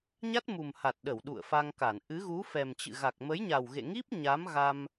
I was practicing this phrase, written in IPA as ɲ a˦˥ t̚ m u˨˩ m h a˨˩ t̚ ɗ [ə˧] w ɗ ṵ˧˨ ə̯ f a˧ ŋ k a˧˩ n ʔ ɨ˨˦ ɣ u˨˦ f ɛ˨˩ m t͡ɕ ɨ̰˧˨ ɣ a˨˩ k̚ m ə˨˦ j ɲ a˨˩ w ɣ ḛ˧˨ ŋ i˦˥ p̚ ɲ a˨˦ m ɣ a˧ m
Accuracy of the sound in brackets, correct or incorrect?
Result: incorrect